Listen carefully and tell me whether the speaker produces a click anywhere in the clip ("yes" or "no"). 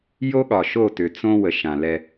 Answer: no